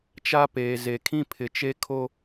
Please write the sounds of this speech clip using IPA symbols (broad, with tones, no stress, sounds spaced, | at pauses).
t͡ʃ a˦ p eː˨ z e˨ kʰ ĩ˦ pʰ ɪ˨ t͡ʃ e˦ kʰ o˦